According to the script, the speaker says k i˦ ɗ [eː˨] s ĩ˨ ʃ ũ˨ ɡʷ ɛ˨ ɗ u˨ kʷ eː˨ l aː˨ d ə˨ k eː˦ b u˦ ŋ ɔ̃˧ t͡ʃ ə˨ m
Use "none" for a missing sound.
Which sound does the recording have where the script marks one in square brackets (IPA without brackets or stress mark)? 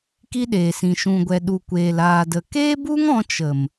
eː˨